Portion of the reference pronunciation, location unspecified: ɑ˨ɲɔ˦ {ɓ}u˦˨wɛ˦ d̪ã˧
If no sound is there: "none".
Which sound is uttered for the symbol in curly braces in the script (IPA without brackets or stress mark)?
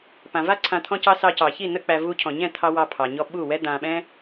ɓ